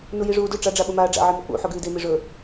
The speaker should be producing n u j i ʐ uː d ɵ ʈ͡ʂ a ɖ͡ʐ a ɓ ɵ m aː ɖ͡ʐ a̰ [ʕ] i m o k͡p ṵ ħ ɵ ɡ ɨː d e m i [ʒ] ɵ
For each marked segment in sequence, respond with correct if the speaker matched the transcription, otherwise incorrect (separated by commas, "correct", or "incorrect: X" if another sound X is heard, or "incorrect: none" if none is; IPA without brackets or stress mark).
correct, incorrect: ʐ